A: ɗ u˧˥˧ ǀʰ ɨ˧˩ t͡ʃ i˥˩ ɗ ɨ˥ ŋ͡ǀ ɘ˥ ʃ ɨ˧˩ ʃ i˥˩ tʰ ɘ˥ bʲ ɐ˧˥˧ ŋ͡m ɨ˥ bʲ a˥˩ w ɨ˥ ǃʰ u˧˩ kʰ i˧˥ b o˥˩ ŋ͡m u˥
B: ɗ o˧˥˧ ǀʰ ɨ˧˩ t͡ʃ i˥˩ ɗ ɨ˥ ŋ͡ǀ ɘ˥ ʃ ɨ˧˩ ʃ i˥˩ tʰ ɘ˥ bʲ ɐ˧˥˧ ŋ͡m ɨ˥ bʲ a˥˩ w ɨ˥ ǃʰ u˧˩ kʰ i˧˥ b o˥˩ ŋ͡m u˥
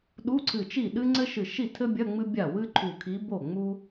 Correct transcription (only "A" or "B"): A